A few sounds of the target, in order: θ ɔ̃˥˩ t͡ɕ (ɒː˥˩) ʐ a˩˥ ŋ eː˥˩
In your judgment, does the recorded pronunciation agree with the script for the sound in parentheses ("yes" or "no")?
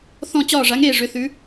yes